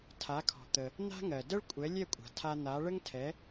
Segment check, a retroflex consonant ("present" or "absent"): present